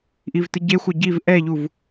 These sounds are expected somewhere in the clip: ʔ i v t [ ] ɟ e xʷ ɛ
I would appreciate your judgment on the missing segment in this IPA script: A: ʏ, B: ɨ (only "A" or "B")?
B